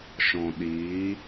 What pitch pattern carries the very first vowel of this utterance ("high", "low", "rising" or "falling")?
low